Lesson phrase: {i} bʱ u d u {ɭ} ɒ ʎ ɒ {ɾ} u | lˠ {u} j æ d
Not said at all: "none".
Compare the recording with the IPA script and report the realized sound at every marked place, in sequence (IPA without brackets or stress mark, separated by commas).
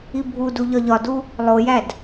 i, ʎ, d, o